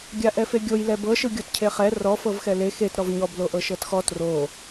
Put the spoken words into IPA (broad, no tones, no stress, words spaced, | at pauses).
ɡʲaʔɛfeɡʲoj lɛbɤ ʃɯɡʲotcʰeχɛ rɔ fɤvxɛle xet ɾɔvɲɔb loʔɤʃɤtxɔ tro